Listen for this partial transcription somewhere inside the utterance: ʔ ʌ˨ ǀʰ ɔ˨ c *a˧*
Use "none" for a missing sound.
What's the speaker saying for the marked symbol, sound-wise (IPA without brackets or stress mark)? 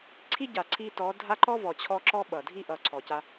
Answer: a˧